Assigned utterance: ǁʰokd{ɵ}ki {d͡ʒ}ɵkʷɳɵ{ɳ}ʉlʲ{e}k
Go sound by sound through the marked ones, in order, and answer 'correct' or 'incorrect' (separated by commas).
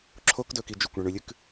correct, correct, correct, incorrect